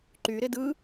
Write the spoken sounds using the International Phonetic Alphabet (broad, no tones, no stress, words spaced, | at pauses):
ǃyɾɪ dɯ